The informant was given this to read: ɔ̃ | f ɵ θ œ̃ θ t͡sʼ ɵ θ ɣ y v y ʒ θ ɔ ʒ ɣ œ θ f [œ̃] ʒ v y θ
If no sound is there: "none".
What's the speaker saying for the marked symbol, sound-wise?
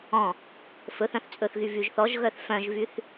œ̃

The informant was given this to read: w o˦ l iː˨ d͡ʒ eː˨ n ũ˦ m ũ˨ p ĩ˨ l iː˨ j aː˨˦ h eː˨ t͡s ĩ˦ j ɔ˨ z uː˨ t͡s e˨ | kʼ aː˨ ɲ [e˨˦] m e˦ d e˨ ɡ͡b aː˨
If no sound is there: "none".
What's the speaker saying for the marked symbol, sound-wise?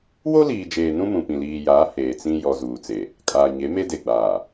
e˨˦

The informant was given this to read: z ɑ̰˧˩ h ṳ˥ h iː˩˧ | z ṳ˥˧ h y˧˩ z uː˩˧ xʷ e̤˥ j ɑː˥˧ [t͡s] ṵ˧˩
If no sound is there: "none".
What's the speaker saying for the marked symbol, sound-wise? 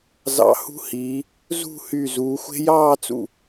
t͡s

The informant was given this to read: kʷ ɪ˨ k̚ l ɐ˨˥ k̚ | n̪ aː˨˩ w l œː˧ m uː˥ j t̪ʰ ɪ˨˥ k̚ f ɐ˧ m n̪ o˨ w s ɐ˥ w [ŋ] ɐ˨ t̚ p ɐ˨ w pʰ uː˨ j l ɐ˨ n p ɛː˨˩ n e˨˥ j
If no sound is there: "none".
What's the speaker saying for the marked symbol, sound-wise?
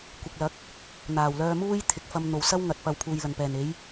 ŋ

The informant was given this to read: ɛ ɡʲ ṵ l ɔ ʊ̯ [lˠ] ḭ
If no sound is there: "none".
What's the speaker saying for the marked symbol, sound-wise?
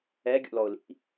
l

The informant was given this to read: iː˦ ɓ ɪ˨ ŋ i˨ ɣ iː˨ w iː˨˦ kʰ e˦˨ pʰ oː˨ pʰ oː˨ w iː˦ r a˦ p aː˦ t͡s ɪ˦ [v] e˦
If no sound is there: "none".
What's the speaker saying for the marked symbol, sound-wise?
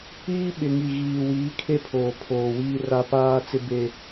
b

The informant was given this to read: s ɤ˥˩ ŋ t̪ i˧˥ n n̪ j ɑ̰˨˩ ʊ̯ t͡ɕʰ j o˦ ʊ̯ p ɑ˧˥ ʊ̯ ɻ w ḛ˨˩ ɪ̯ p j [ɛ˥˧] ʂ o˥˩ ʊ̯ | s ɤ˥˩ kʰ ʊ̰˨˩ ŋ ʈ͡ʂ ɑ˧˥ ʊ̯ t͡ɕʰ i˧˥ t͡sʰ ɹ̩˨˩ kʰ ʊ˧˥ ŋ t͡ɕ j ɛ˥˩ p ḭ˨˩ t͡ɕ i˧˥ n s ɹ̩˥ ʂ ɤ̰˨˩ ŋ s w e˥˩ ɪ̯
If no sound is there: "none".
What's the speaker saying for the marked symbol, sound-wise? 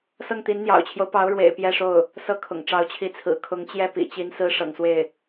ɛ˥˧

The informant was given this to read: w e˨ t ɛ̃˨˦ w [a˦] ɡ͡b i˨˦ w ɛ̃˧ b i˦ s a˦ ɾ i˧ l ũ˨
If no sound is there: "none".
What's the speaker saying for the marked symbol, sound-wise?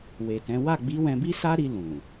a˦˨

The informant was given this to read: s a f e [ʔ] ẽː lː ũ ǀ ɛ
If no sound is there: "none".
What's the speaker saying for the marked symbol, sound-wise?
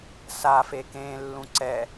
k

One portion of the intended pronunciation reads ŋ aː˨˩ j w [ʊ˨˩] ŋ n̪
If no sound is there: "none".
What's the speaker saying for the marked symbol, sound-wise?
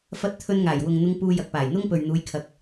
ʊ˨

